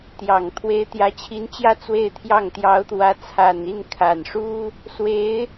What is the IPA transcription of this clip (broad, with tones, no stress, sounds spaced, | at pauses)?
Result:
t̪ j ɑ˨˩ ŋ t̪ʰ w e˧˥ ɪ̯ t̪ j ä˧˥ t͡ɕʰ i˧˥ n t͡ɕ j ä˥˧ t͡s w e˥˧ ɪ̯ t̪ʰ j ɑ˥˩ ŋ t̪ j ɑ˧˥ ʊ̯ t̪ w ä˧˥ t͡sʰ a˨˩ n i˥˩ n kʰ a˨˩ n ʂ u˥ | s w e˧˥ ɪ̯